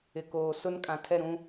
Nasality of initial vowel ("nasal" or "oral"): oral